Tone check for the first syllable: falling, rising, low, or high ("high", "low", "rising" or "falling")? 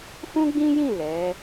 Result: high